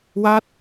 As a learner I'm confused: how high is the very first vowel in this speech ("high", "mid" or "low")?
low